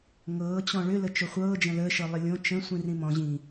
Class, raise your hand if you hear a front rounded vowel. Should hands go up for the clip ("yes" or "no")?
yes